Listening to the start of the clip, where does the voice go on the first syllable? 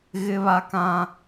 high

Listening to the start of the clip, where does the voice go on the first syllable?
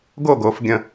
falling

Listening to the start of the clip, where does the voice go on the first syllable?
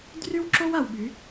high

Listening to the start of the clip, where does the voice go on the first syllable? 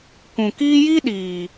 low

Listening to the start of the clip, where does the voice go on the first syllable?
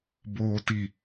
low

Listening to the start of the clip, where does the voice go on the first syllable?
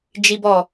high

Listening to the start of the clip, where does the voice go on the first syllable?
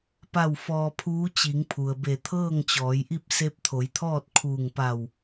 falling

